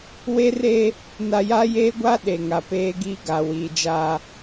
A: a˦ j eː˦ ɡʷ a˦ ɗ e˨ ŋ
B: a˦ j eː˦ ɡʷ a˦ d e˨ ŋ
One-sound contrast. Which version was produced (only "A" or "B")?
A